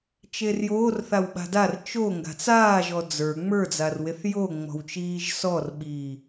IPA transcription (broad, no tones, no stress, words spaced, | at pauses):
t͡ʃerjoːrθaw ɓa̤dar t͡ʃo ŋɡa̤t͡saː ʒɔd͡zə˞ ŋ͡mə˞d͡zarweθ joŋ͡mɔ̤wt͡ʃiːʒ sɔrɓiː